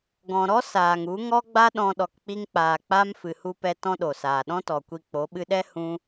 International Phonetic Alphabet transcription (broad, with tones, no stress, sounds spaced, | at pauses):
ɡ ɔ̃˨ ɾ ɔ˦ s aː˨ ŋ u˨˦ ŋ ɔ˦ ɡ͡b a˦ ɗ ɔ̃˧ ɗ ɔ˨ k k͡p i˧ ŋ k͡p aː˨ k͡p a˦ m f ɨ˨ h u˧ p ɛ˧ t ɔ̃˦ ɗ o˨ s aː˨ ɗ ɔ̃˦ t ɔ˨ kʷ i˧ k͡p o˨˦ ɓ ɨ˧ ɗ ɛ˦ h ũ˦